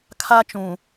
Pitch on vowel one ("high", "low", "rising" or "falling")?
high